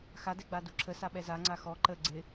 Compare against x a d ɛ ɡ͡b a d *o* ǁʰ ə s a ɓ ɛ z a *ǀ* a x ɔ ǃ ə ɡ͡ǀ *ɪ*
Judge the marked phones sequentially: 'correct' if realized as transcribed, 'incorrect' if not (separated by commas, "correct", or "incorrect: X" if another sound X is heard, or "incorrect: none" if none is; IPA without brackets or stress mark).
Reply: incorrect: u, incorrect: ŋ͡ǀ, correct